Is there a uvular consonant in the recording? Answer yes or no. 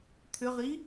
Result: yes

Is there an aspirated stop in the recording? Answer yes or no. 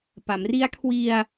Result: yes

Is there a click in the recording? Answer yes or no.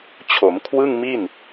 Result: no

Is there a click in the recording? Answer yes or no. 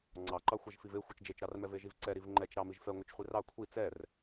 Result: yes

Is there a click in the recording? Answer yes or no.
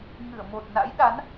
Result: no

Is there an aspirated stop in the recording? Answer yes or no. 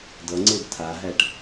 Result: yes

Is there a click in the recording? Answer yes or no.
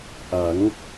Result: no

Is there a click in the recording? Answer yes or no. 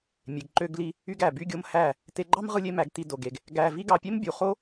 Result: yes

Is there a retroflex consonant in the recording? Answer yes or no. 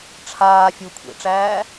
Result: yes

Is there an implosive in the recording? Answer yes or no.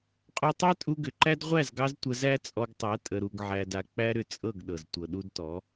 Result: yes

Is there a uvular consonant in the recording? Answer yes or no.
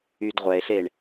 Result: yes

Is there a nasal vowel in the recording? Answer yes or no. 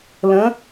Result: yes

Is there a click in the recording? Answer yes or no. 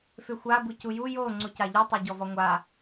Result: yes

